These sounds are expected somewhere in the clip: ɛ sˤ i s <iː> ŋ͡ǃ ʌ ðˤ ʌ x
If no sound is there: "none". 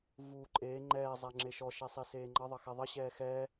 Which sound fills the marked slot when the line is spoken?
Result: eː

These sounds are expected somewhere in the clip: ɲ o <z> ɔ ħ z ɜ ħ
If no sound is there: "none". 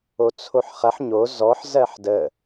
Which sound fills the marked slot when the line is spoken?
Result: z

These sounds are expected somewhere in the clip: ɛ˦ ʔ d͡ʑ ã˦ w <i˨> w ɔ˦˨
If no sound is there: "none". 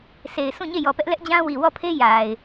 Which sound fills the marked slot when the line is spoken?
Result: i˨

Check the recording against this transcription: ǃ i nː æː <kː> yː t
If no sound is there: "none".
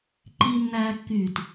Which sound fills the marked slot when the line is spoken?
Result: kː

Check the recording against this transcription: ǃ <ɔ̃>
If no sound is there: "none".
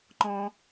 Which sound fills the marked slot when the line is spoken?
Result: ɔ̃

